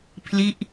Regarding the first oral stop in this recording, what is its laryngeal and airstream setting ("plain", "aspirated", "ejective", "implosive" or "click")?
aspirated